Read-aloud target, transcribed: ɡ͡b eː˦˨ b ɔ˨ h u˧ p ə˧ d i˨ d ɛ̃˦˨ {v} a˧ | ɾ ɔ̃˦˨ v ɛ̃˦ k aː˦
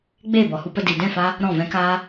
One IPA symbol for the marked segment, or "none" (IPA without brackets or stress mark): f